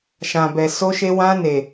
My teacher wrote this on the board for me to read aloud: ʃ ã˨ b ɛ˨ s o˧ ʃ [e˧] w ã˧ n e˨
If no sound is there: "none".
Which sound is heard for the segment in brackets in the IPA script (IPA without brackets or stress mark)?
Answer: e˧